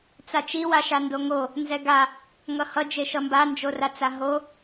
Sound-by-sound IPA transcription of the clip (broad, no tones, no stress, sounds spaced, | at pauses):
t͡s a t͡ʃ i w a ʃ a n d o ŋ o | n z ɛ ɡ a | ŋ ʌ h ʌ d͡ʒ e ʃ ʌ m b a n d͡ʒ o r a t͡s a ɦ o